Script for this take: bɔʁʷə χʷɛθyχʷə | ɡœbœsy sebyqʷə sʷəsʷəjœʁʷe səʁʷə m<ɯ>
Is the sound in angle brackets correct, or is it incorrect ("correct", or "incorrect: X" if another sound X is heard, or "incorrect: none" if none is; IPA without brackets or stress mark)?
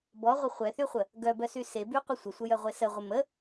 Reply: incorrect: ə